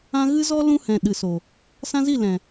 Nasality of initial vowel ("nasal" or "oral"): nasal